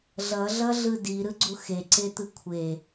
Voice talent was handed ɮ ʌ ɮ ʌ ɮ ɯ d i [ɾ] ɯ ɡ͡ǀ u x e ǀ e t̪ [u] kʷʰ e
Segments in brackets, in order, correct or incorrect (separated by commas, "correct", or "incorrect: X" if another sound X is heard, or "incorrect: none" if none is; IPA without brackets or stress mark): correct, incorrect: ɯ